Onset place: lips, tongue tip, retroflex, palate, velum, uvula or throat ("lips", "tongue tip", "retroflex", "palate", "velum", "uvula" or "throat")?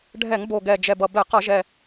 retroflex